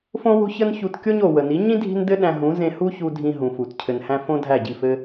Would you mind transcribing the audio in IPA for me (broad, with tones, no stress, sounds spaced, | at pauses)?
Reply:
f õ˦ w o̤˦ ç ə˦ n ç u˧ t kʲ o˦ ɲ o˨ w ə˨ n i˨˦ ɲ ĩ˦ dʱ i̤˦ n d ɘ˦ ɗ æ̃˧ ɦ ũ˨˦ z ẽ˧ h u˦ ç u˧ dʱ ĩ˧ ɦ ũ˨ f u˨ t cʰ ɘ˨ n h æ̃˧ f õ˦ dʱ æ˦˨ ɟ i˦˨ f ɘ˦